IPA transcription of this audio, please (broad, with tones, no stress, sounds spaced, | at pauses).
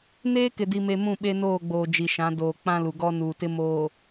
n eː˦ k ɪ˨ d i˨ m e˨ m ũ˦˨ ɓ e˦ n oː˦˨ ɡ͡b oː˨ d͡ʒ i˨ ʃ ã˨˦ d oː˨ k͡p ã˦ l u˨ ɡ ɔ˦ n uː˨ t ɪ˦ m oː˨